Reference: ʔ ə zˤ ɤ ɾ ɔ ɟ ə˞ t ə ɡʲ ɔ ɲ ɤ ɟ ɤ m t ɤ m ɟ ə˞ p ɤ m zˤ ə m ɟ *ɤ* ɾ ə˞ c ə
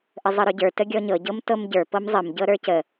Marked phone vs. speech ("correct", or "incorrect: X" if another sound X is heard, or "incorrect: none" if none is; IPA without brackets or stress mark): correct